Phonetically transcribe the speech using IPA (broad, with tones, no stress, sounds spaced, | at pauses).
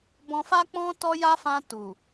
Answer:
b ɔ̃˧ f a˦ k͡p ɔ̃˦ t ɔ˦ j a˦ f ã˧ t u˨